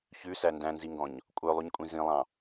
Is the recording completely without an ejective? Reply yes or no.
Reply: no